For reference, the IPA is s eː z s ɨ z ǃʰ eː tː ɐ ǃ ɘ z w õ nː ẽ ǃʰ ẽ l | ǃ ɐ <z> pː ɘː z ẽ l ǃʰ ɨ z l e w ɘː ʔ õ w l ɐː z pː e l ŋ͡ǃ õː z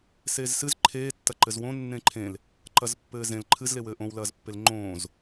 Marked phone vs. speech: correct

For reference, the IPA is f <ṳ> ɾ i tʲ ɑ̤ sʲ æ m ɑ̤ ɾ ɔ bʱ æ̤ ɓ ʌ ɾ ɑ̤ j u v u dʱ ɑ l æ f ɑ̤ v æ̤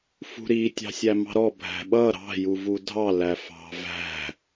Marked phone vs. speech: correct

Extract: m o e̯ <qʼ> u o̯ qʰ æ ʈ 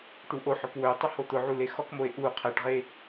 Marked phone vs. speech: incorrect: ʔ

